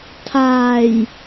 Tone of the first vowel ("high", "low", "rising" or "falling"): low